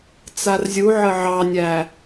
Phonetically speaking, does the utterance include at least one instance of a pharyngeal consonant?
yes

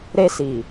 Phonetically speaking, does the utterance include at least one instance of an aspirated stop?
no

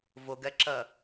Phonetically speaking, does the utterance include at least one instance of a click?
yes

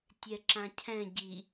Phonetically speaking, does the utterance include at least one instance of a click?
yes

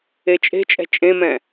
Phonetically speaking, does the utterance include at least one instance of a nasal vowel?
yes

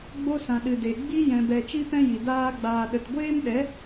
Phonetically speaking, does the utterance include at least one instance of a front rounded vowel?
no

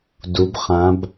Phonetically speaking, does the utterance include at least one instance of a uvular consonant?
yes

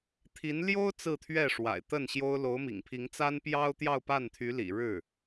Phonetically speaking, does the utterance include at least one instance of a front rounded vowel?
yes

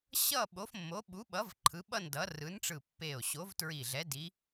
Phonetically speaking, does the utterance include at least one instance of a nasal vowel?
no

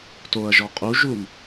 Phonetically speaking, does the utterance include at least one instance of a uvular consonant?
yes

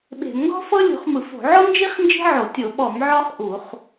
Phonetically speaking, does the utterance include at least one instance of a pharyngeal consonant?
yes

